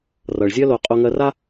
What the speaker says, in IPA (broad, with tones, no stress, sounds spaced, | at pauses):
r ʌ˨ ɭ zʲ ɜ˦ l o˧ qʼ o˧ ŋ ɜ˧ r a˦